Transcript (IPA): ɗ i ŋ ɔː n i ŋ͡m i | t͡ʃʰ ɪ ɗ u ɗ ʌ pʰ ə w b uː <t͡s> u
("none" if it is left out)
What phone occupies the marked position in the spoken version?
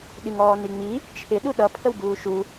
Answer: ʃ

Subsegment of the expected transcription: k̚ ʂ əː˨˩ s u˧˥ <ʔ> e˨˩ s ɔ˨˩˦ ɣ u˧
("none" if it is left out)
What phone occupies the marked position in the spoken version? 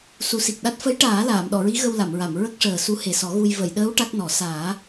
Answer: h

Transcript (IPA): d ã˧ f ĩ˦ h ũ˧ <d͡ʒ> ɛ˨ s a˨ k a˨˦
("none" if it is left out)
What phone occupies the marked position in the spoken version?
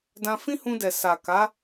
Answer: d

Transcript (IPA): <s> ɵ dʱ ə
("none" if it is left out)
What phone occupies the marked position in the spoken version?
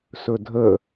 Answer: s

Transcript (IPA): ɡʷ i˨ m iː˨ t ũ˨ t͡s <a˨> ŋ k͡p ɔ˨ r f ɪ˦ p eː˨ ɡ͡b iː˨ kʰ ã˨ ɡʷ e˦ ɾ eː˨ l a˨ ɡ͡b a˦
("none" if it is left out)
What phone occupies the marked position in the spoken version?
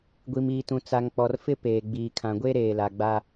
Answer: a˨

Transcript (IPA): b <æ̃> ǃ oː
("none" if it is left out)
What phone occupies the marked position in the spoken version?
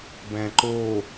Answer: æ̃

